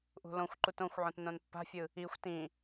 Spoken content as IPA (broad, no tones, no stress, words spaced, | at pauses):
ʔṳlõxʷǃut õxʷʕõt nõnpːa̤fʲɯ | ixʷ tĩ